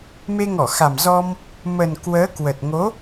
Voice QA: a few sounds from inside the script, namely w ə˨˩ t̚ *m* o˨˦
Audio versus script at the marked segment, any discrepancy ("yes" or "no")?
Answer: yes